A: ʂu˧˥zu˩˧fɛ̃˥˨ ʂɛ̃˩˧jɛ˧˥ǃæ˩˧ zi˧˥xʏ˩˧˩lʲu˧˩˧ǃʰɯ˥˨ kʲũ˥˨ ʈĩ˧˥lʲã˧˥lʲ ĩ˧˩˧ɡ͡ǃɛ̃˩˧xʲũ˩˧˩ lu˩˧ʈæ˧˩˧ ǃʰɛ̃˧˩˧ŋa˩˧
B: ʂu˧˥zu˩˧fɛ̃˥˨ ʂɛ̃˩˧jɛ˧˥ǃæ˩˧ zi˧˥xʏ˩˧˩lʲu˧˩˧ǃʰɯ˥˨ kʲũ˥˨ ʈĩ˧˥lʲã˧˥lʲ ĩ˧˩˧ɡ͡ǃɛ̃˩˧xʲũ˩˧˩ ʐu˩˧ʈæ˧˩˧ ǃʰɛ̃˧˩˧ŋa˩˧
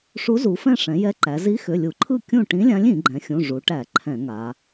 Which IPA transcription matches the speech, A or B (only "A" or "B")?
B